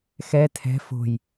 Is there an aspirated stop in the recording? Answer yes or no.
yes